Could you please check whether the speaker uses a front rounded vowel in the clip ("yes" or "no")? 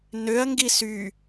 yes